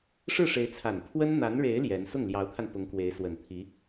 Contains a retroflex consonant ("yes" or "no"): yes